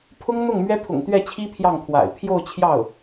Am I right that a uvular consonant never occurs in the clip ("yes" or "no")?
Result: yes